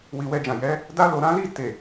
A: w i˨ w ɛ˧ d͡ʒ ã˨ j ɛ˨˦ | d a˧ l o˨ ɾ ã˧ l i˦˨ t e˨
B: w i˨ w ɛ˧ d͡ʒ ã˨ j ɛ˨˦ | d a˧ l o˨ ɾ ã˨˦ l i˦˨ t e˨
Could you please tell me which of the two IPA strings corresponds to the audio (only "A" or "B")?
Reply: B